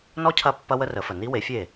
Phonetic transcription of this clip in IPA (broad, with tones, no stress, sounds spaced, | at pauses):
n ɔ˥ cʰ ɐ˥˩ pː ɐ˥ w ə˥ r ə˩˥ f ə˩ n i˥ w e˩˥ fʲ e˥˩